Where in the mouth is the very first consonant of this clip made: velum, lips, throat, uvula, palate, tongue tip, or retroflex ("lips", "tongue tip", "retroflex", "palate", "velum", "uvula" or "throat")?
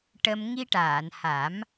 retroflex